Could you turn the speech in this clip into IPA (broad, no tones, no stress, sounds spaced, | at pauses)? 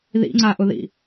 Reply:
ð ḭ ŋ͡ǀ a ʔ ʊ ð ḭ